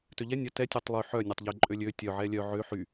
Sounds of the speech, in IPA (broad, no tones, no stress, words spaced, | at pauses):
tøʎɛ nʲœ tɛ tʲøtˤlˠy ħœ nʲøtˤʎe ǃʼølʲø tʲœʕɛ lʲœ ʕø ħy